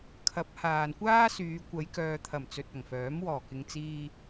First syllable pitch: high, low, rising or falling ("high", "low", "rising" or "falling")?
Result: rising